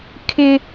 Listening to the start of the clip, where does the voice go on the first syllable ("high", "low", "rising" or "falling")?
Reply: high